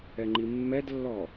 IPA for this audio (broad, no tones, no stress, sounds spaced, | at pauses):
ɛ ŋ͡ǃ i mː ɛ d lː ɔ